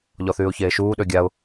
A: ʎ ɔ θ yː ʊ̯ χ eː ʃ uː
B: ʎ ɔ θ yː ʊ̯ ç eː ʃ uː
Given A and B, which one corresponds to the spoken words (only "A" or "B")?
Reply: B